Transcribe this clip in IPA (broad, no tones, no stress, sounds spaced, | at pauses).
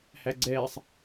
h æ ɡ͡ǀ ɛː sˤ